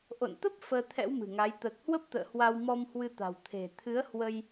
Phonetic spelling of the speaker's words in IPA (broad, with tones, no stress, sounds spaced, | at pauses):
ʔ o̰˧˨ n t̪ ə˦˥ p̚ f əː˧ t̪ʰ ɛ̰˧˥ w m ɨ̤˨˩ ŋ a˨˦ j t̪ əː˨˩ k̚ h w ə˦˥ p̚ t̪ ə̰ː˧˨ h w a˧ w m ɔ˧ m h w ɨ˧ t̪ a̤˨˩ w t̪ʰ e̤˨˩ t̪ʰ ɨ˨˦ ə̯ h w ə˧ j